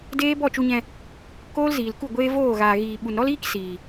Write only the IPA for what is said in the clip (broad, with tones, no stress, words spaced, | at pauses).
deː˦ bɔ˦˨t͡ʃu˧ɲɛ̃˧ | koː˦lziː˨lku˦˨ ɡʷeː˦voː˦˨ɣaː˨ɣiː˨ ɓu˨nɾɔ˦liː˦k siː˨